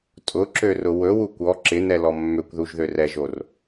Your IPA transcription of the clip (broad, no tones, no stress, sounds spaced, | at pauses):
tʼ ʊ ǁ ø r ʊ w ɵ w u kʷ ɔ ǁ ɪ n ɛ l ɔ mː ø kʷ ð u ʒ ð ø r ɛ ʒ o r